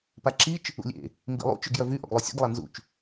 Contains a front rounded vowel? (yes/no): yes